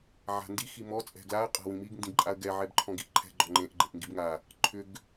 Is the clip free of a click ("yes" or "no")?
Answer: no